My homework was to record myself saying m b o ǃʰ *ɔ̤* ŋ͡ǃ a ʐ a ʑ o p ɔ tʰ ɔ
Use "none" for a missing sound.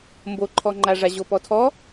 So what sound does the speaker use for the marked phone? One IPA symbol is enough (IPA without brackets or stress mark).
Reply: ɔ